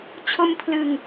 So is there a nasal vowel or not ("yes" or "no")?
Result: no